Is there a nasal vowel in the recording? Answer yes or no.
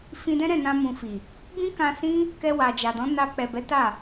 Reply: yes